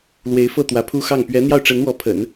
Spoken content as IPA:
l w e˧˥ ɪ̯ f ɤ˥˩ t̪ w ä˧˥ pʰ u˥ x ɑ˥˩ ŋ p ɥ ɛ˧˥ n̪ j ɑ˥˩ ʊ̯ ʈ͡ʂ ə˧˥ n w ɔ˧˥ pʰ ə̰˨˩˦ n

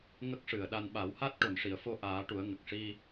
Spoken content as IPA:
ŋ ə˦˥ k̚ ʂ ɨ˨˩ ə̯ ɗ a˧ n ɓ a˨˩˦ w h a˦˥ t̚ ʈ o˨˩ n ʂ i˨˩˨ ə̯ f o˧ ʔ aː˨˩˦ ʈ u˨˩˦ ə̯ ŋ ə˨˩ k̚ ʂ i˧

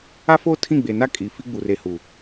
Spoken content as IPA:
a˦ f oː˦ tʰ ĩ˦˨ ɡ͡b e˨ n a˦ kʼ i˨ f i˦ ɡ͡b u˨ r e˨ h uː˨

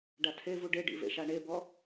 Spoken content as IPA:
ɖ a tʰ e v u ɖ e ɖ ḭ v ḛ ʃ a ɳ e b ɔ

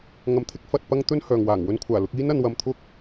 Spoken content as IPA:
ŋ ɐ˧ m t̪ʰ ɪ˥ k̚ f ɐ˧ t̚ p ɐ˥ ŋ t̪ ɵ˥ n h œː˨ ŋ w aː˨˩ ŋ w ɵ˧ n kʷʰ aː˨˩ l ʊ˧ k̚ iː˥ n ɐ˧ n w ɐ˧ m t̪ʰ ʊ˥ k̚

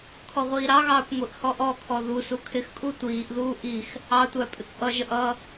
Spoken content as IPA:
kʰ ɔ ʁʷ iː ɾ ɑ ɣ ɑː kʷ ŋʷ i ʔ h ɔ ʔ ɔ kʰ ɔ ð u s u kʰ ɪ x kʼ u tʷ iː ʔ ð uː ʔ i x | ɑ tʷ æ pʼ ɪ kʷ ʔ ʌ ʒ ə ʔ ʌ

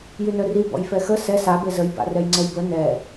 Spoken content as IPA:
j y n œ r i b ɔ̰ j f ɛ x ə s ɛ s a b e z ə j b a̰ r ɛ j ŋ͡ǀ ɛ j b ə n ɛ

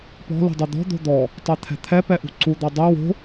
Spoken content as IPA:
p ɔ̤ l ṳ dˤ u d̪ ɔ̤ d̪ o̤ d̪ ɔ | tˤ ɛ t̪ʰ ɛ̤ t̪ʰ ɛ p ɛ ʔ ṳ ǀ u d̪ ɔ dˤ ɛ w o̤

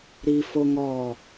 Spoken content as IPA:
ɾ i f o ŋ ɔ

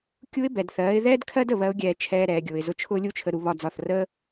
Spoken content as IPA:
kʲ u˦ ɪ̯ b ɛ˨ d θ ɜː˨˦ ɪ̯ ð ɛː˦ d kʰ ɜ˦ d ə˨ β ɜ˦ ʊ̯ ɡʲ ɛː˧ t͡ʃʰ ɛː˧ ɾ ɛː˨ ɡʲ ʊː˨ ɪ̯ z ʊ˧ t͡ʃʰ ʊː˦ lʲ u˦ t͡ʃʰ ə˧ ɾ u˧ β ɒ˧ d͡z ɒ˦˨ θ r əː˦

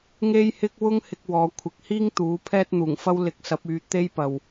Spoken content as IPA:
ŋ e˥ j h ɪ˥ k̚ w ʊ˥ ŋ h ɪ˧ k̚ w ɔː˨˧ kʷʰ ɪ˨˥ k̚ h iː˥ ŋ t̪ uː˨˥ pʰ ɛː˥ t̚ n̪ uː˨˩ ŋ f ɐ˥ w l ɪ˧ k̚ s ɐ˨˥ p̚ yː˧ t̪ e˥ j p ɐ˨ w

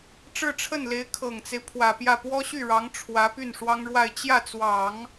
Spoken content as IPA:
ʈ͡ʂ ɻ̩˥˧ ʈ͡ʂʰ ə˥˩ n l e˧˥ ɪ̯ kʰ ɤ˨˩ ŋ t͡s e˦ ɪ̯ pʰ w ä˨˩ p j ä˥˩ p w ɔ˥ ɕ y˥˩ ɻ ɑ˧˥ ŋ ʈ͡ʂʰ w ä˧˥ p y˥˩ n ʂ w ɑ˥ ŋ ɻ w a˥˧ ɪ̯ t͡ɕ j ä˥˩ t͡s w ɑ˨˩˦ ŋ

